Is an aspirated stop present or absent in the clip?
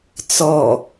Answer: absent